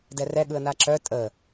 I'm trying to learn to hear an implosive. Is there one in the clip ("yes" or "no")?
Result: yes